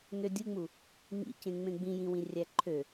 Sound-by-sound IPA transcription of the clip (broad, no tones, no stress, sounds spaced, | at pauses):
n ø dʲ ɯ ŋ͡m u | ŋ ḭ c ẽ ŋ͡m ẽ ɡ͡b ĩ j ĩ w ĩ rʲ æ ǃʰ ø